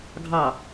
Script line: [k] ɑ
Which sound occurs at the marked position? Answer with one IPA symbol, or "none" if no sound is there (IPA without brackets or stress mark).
ɡʱ